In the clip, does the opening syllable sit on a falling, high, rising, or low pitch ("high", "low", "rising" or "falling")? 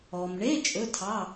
low